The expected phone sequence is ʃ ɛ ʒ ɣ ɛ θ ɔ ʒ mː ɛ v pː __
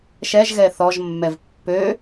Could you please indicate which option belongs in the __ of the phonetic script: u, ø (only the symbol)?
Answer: ø